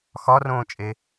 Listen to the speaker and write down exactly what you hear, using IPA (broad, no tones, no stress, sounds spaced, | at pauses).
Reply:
x ɒ r õː t͡ʃʼ e